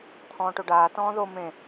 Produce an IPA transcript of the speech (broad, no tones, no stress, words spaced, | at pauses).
t̪ʰɔ̃ːʈoɖaː tɔ̃ːðo mẽ